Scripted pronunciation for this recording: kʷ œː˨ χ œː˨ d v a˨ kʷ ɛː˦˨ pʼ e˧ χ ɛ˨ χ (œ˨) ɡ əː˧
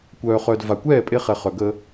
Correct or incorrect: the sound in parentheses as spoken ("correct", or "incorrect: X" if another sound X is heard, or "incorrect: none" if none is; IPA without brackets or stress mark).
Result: correct